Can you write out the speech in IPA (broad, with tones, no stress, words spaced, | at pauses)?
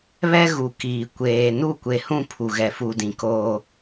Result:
βɛ˦ɣu˨ kiː˨ kʷeː˨ nu˦˨kʷe˨hũ˦˨ pʰu˨ɣɛ˨fu˨dĩ˨ koː˦